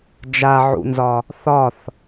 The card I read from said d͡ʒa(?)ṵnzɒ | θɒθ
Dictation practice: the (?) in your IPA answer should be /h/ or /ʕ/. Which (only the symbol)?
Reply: ʕ